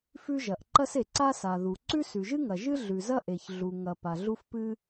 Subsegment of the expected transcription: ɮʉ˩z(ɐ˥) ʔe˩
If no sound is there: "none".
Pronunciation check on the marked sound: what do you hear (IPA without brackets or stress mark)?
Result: ɐ˥